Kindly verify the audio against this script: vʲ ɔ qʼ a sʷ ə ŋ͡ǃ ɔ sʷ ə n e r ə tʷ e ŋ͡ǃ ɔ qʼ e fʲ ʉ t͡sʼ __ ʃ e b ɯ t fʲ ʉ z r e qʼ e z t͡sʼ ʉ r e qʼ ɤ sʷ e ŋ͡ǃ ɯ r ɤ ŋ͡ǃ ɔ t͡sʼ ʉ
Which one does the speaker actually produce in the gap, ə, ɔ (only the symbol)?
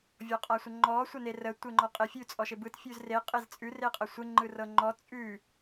ɔ